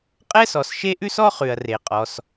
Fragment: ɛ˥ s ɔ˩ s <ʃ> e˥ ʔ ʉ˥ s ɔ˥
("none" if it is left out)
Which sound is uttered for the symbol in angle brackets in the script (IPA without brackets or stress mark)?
ʃ